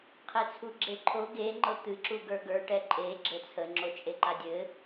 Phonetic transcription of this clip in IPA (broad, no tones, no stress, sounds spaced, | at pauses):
qʰ e t͡sʰ u ɡ͡ǁ e ǃʰ o ɡ e ŋ͡ǃ ɤ t̪ ɨ ǁ u ɡ ə˞ ɡ ə˞ ʈ ɛ ǃʼ e ɡ͡ǁ ɘ t͡sʰ ə ŋ͡ǁ o t͡ʃʼ e ǃ a dʲ ɘ